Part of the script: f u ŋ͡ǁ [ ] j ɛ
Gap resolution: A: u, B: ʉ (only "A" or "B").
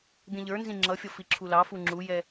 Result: A